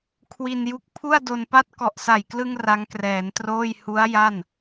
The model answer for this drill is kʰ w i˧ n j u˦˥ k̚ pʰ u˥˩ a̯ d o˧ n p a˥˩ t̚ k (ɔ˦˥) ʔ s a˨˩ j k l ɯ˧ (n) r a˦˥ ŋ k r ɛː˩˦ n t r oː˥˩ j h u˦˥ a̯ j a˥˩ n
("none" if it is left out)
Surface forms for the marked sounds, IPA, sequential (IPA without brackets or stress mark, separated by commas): ɔ˨˩, ŋ